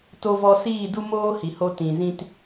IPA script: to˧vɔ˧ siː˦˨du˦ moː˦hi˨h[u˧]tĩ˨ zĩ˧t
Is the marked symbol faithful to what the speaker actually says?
no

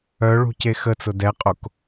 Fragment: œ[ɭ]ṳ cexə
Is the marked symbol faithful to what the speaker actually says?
yes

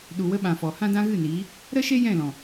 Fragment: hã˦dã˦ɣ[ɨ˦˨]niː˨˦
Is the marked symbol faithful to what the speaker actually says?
yes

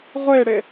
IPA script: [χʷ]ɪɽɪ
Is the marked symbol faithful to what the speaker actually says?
no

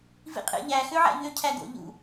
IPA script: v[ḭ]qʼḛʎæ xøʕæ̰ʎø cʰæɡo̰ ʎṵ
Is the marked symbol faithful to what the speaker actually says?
yes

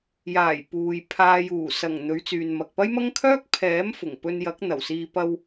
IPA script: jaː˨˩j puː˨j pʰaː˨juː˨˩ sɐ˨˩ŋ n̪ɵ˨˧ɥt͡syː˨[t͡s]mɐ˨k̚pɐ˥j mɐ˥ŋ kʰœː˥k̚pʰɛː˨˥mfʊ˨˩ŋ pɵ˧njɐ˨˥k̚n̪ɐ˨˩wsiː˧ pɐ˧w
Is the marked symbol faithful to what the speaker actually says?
no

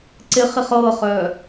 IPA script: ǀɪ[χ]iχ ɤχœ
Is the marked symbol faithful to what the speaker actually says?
yes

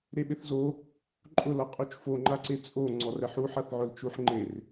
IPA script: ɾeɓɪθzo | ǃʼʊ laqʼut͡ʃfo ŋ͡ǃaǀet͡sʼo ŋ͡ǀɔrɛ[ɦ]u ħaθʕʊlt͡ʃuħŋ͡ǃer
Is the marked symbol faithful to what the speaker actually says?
no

